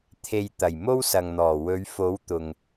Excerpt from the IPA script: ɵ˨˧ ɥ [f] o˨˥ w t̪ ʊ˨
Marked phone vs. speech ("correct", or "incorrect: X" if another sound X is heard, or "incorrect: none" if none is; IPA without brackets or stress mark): correct